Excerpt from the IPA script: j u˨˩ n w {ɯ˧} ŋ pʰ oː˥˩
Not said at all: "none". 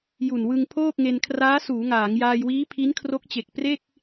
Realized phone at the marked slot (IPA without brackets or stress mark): ɯ˧